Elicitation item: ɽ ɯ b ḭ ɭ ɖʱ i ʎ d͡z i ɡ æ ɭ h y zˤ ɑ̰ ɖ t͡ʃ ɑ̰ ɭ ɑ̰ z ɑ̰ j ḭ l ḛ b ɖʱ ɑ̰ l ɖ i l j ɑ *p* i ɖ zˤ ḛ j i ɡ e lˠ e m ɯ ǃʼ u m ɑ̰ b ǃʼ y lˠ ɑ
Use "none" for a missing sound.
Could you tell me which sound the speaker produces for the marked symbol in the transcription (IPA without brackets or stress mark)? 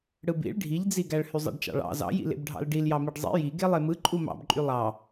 m